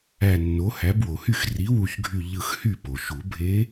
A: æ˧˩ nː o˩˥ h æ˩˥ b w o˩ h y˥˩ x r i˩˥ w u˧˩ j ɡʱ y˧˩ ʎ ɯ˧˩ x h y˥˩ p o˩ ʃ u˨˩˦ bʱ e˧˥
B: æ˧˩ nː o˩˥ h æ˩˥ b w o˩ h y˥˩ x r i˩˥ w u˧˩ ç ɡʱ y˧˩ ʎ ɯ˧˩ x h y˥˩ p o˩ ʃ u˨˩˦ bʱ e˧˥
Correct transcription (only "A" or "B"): B